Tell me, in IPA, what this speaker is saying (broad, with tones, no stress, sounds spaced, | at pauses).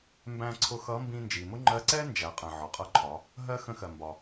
m b æ̃˧ ǀʰ ʊ˧ x ʌ˧˥ m b ĩ˧ n d͡ʒ i˩ m ʊ˥ ŋ͡ǃ ɜ˧˥ ǀ ɛ˥ n d͡ʒ æ˩˧ qʼ ə̃˩ ʕ ɒ˩ qʼ ʌ˧˥ ǃʰ ɒ˩˧ | ɦ ɜ˥ x ə̃˧˥ x ɜ˩ m b ɒ˩